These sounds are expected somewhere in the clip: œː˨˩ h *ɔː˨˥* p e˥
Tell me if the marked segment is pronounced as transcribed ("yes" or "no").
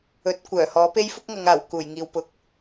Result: yes